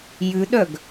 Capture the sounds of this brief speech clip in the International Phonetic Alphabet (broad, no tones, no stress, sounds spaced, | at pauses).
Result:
j ʉ ɗ œ ɡ